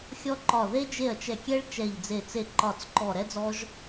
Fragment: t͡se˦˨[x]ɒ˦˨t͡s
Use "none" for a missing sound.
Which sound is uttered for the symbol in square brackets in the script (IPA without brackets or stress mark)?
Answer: ǃ